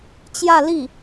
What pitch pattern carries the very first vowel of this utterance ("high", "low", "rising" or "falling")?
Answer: falling